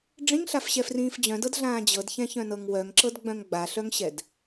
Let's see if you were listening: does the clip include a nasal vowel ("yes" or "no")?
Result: yes